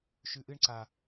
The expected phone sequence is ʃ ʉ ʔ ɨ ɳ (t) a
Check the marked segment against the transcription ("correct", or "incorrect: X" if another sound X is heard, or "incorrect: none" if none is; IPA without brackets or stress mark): incorrect: ǀ